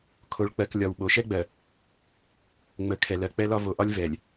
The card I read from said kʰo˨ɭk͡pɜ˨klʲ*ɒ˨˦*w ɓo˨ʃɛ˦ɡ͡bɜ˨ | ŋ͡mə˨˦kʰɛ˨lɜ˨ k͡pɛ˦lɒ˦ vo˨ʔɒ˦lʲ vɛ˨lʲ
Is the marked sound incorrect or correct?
incorrect: ɒ˨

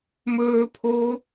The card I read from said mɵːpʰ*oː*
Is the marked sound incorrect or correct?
correct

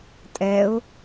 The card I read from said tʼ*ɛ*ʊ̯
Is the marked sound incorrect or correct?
correct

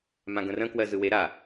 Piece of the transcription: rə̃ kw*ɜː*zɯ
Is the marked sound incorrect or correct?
incorrect: ɜ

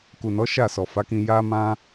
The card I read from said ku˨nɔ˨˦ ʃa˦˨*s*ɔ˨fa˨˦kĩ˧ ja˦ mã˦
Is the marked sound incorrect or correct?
correct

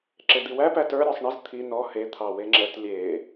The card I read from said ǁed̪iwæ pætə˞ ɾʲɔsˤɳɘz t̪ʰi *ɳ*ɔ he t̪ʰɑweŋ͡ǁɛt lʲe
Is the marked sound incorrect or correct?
incorrect: n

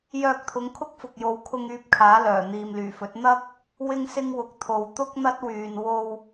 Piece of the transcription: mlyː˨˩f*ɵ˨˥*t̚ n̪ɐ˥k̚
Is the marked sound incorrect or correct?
correct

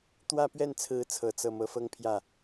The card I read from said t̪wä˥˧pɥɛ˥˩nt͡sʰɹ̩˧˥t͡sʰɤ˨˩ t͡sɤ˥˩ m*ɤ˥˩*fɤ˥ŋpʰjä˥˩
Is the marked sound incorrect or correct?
incorrect: ɤ˧˥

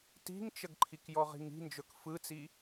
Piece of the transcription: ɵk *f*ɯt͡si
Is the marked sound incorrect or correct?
correct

